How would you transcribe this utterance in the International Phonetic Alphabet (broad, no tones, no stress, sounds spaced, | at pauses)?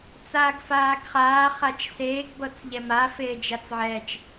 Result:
t͡s aː ɡ f aː ɡ χ aː χ a t͡ʃ s eː ɡ b ɤ t͡s ʎ ɛ m a f eː d͡ʒ a t͡s ʕ ɛː t͡ʃ